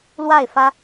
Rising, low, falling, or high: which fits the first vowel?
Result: falling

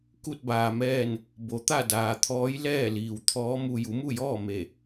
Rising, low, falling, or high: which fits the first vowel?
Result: falling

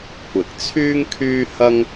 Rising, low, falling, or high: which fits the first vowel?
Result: low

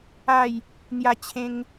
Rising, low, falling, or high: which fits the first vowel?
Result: falling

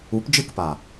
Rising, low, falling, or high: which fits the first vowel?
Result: rising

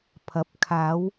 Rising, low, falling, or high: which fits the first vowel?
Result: rising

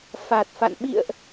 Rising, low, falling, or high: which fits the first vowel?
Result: low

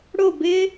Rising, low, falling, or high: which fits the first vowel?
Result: falling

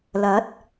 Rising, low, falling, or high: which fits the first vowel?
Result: rising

